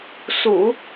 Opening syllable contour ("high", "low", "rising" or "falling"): low